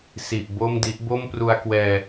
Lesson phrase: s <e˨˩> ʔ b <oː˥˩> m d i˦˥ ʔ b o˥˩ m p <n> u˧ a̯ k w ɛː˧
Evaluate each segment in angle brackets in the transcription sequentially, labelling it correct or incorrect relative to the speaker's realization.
incorrect, incorrect, incorrect

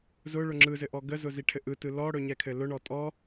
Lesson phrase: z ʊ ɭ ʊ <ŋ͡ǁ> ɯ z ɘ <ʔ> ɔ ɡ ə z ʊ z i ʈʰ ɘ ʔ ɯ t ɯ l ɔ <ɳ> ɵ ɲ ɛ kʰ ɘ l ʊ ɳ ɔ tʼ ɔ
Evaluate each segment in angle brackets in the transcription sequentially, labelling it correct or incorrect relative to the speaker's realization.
correct, correct, incorrect

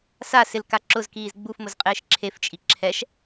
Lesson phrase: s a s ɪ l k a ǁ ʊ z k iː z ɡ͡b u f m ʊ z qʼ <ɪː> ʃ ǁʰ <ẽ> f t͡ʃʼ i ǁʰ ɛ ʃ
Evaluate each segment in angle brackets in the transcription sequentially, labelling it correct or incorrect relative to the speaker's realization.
correct, incorrect

